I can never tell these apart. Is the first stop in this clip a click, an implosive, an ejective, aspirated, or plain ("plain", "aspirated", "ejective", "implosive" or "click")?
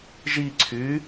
click